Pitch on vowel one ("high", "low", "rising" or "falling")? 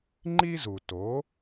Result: high